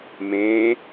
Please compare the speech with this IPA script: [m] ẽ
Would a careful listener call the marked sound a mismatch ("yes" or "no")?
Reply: no